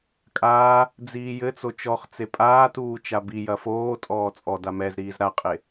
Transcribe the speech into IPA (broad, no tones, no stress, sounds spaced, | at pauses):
kʼ aː | d͡z iː j ɘ t͡s o t͡ʃ ɔ χ t͡s e pʼ aː t uː t͡ʃ a b i j ɐ f oː tʼ ɔː t͡sʼ ɔ d a m ɛ z ɾ iː z ɾ a qʼ e